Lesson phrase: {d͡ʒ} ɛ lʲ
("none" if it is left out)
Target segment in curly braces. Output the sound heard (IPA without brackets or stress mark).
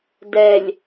d